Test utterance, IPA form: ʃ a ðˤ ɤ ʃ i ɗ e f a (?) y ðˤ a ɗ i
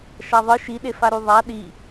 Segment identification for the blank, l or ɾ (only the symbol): ɾ